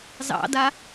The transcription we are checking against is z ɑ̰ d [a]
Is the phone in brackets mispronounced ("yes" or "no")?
no